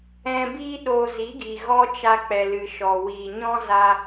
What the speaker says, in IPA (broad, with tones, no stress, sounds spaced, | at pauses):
ɛ̃˧ b iː˦ ɗ oː˧ z i˨˦ ɡ i˨ ɣ ɔ˦ t͡ʃ a˧ k͡p ɛ˨ l ɨ˨ ʃ ɔ˨ w iː˨ ɲ ɔ̃˦ z a˦